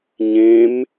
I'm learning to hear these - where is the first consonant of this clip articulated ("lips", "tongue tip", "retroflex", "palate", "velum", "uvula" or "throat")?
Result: palate